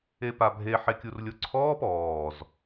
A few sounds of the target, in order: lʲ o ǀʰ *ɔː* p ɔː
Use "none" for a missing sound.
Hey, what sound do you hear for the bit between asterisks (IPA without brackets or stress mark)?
ɔː